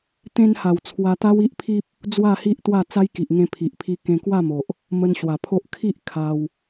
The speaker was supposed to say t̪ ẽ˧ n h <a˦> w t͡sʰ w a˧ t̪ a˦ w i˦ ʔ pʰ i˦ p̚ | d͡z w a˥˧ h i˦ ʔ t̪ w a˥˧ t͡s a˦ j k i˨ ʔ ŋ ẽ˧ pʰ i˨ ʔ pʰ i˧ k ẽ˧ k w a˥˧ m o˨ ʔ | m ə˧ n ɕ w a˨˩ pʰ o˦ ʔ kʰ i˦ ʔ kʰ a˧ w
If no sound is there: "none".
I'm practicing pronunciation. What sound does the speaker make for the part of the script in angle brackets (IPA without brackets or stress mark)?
a˨˩